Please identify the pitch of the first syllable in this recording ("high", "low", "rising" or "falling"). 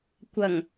low